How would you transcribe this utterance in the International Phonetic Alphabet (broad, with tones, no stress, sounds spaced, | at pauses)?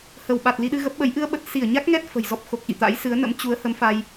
h ə˧˩ w ɓ a˨˩ t̚ l i˧ ɗ ɨ˧ ɣ ə˦˥ p̚ ɓ ə˨˦ j ʔ ɨ˧ ə̯ ɓ ə˨˩ t̚ s i˧˩ ə̯ ɲ a˦˥ k̚ ŋ ɛ˦˥ t̚ f ə̤˨˩ j z ɔ˦˥ p̚ x o˨˩ k̚ ʔ ḭ˧˨ t̪ a̰˧˥ j s ɨ˨˦ ə̯ n ə̰˧˥ m t͡ɕ u˨˦ ə̯ h ə˨˦ m f a˧ j